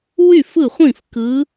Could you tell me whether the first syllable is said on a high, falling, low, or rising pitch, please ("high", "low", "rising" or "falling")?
falling